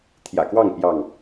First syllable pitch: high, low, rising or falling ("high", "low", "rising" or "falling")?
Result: low